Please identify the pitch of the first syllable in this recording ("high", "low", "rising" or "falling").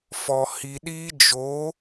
low